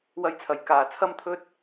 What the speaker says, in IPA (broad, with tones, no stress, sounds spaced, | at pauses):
w ɐ˧ j t͡sʰ ɐ˨˩ j k aː˨ t͡sʰ ɐ˥ m t̪ʰ ɵ˥ t̚